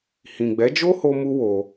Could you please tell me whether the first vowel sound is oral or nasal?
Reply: nasal